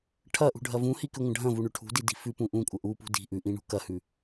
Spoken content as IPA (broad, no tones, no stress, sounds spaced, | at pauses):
ʈʰ ɐ ʔ ṳ ɖʱ ɐ v ũ h i k ʉ ŋʷ ɐ̃ ɖʱ ɐ̃ v u ɳ ʉ ʈʰ ṳ d i d i̤ f ʉ p ũ ʔ ũ kʷʼ ɐ ʔ u p ṳ d i̤ ʔ ʉ ʔ ĩ ɳ ṳ k ɐ h ʉ